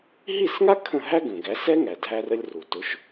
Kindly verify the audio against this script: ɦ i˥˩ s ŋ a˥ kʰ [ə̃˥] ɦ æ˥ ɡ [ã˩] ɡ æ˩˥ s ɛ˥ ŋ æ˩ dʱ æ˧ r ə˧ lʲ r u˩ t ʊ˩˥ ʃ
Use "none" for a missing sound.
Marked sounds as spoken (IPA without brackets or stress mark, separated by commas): ə̃˥˩, ə̃˩